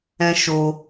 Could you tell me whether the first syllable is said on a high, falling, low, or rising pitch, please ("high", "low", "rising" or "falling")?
high